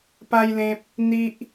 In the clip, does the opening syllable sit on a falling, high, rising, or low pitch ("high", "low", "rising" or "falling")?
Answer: high